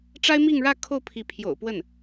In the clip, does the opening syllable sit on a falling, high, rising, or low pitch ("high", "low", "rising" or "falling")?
high